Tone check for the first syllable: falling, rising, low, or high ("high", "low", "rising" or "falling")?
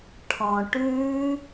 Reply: low